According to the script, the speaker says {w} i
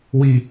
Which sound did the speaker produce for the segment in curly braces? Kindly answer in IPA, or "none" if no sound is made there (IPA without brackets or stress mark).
w